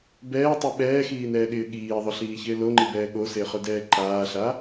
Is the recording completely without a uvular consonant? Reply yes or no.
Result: no